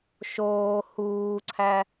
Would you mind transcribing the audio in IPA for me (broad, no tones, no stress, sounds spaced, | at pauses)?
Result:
ʃ oː h uː ǀʰ æ